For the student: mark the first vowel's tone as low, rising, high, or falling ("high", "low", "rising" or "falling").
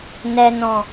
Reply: low